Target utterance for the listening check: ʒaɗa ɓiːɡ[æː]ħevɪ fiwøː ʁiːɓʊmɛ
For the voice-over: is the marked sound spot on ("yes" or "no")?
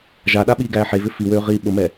yes